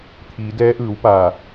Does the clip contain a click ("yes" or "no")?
no